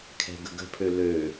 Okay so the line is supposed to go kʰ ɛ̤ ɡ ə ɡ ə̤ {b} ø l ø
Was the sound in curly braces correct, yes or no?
no